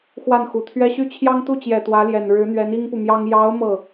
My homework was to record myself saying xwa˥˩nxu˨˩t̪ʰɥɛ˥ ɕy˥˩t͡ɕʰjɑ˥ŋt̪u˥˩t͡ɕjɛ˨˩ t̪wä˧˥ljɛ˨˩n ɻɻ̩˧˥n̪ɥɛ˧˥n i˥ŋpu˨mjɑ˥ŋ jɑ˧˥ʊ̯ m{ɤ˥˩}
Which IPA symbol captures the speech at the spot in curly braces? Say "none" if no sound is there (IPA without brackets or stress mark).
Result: ɤ˥˩